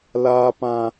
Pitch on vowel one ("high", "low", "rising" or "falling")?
high